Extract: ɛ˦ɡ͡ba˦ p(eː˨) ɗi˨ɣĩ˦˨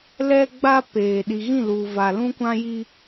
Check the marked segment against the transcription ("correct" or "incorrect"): correct